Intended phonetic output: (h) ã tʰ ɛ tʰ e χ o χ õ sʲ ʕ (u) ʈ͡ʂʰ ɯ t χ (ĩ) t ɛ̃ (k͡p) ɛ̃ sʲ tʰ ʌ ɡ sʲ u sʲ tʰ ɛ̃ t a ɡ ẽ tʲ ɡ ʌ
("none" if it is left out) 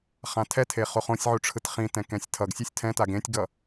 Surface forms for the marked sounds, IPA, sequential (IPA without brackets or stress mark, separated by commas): χ, u, ĩ, k